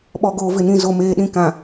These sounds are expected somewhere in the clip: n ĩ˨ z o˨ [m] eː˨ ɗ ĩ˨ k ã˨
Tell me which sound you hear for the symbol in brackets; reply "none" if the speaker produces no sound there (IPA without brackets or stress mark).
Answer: m